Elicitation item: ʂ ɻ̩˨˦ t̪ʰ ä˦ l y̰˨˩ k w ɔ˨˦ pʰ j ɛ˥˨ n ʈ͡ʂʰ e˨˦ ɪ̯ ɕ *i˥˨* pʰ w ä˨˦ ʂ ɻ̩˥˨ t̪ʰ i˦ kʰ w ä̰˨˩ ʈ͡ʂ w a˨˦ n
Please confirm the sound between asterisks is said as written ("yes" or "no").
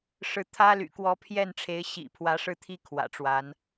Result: no